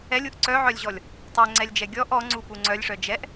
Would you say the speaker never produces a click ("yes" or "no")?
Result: no